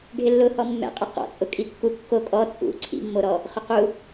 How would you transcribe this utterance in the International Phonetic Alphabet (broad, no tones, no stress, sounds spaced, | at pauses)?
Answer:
ɖʱ ɪ lː ʊ h ɔ mː ɛ̰ qʼ ɛ q ɔ̰ t͡sʼ ʊ kʼ i kː u kː o kʼ ɔ t͡sʼ ṵ ǀʰ ḭ mː o ɾ ɔ | χ ʏ q u